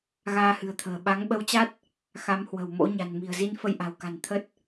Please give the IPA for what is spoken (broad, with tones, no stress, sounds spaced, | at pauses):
ɣ aː˧ h ɨ̤˨˩ ə̯ t̪ʰ ə̤ː˨˩ ɓ a˨˦ ŋ ɓ ə˧ w t͡ɕ a˦˥ t̚ | x a˨˦ m h w ə̤˨˩ w m o̰˧˥ ɲ a̤˨˩ n m i̤˨˩ ə̯ z i˧ n f ə˧ j ʔ a̤˨˩ w k a̤˨˩ n t̪ʰ ə˦˥ t̚